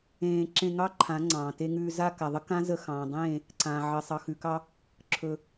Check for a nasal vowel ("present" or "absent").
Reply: present